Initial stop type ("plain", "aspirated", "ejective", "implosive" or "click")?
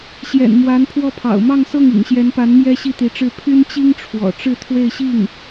aspirated